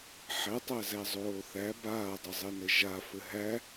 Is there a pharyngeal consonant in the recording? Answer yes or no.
yes